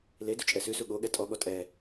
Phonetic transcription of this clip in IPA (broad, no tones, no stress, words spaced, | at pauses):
le dut͡ʃʼɛsʉsu ɠo ɠɛtʼɔɠɔ tʼɛ